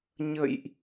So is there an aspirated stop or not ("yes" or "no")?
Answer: no